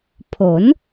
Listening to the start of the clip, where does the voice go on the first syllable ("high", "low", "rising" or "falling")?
rising